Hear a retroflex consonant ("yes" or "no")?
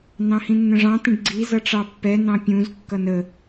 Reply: yes